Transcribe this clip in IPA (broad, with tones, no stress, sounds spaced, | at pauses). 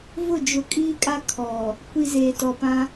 v ʊ˦˨ d͡ʒ ʊ˨ kʼ iː˦ kʼ a˦ kʰ ɔ˨ | kʷ i˨ z eː˨ t ɔ˨ p ã˦